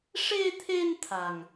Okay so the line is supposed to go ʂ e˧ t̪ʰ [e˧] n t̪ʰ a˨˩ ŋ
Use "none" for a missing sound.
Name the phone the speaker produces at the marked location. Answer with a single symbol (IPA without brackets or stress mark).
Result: e˧